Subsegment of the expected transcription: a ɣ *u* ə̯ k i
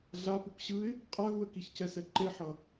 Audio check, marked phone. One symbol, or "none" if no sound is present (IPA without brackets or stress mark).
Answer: u